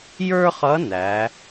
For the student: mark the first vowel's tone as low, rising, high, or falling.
high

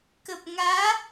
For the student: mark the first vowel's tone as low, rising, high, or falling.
low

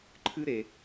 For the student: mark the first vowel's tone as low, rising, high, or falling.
high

